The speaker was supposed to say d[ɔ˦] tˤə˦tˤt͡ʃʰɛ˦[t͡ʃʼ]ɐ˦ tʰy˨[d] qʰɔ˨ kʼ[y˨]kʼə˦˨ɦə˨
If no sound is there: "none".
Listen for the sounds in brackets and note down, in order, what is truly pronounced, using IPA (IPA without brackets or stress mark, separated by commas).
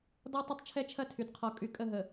ɔ˦, t͡ʃʰ, d, y˨